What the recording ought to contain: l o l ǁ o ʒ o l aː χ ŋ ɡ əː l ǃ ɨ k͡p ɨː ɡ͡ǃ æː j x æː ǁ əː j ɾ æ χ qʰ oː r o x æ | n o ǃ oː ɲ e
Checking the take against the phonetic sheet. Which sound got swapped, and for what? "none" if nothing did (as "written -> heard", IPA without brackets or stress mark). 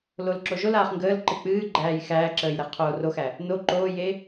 ɲ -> j